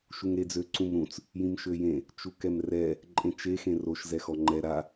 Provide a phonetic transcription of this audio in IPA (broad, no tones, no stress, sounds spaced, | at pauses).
ʃ u ŋ ɾ e d͡z ø ǀ ũ m ɾ ũ t͡s | j ĩ m ʃ ø j ẽ | t͡ʃ u k ɛ m r ɛ | ǃʼ ẽ t͡ʃ e x ẽ r o ʃ z ɛ x ɔ ŋ͡ǃ ɛ ɾ a